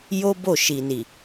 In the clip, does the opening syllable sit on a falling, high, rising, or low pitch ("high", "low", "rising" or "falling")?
high